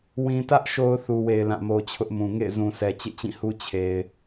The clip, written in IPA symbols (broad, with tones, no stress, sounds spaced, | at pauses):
w ĩ˨ t ä˦ ʔ ʃ o˦ ʊ̯ θ u˨ w e˨ ɪ̯ l ã˦˨ m o˦ t͡ɕʰ ʊ˦ ʔ m ũ˨ ŋ ḛ˦˨ ɪ̯ z ũ˨ s ɛ˨ t͡ɕ ḛ˦˨ t͡ɕ ĩ˦˨ h u˦ t͡ɕʰ e˨ ɪ̯